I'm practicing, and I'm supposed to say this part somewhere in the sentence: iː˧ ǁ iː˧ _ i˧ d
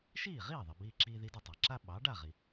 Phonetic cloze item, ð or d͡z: ð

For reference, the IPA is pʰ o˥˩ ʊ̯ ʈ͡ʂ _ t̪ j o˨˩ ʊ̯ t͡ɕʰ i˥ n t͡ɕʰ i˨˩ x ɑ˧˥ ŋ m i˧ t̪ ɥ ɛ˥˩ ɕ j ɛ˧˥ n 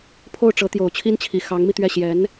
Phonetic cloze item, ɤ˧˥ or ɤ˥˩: ɤ˧˥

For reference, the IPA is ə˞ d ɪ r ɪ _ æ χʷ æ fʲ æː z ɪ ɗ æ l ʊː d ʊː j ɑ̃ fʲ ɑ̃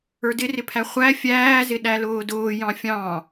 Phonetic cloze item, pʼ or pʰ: pʰ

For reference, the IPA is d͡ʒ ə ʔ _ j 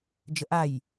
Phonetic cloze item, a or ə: a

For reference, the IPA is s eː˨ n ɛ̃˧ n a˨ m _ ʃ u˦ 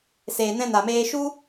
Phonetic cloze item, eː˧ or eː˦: eː˧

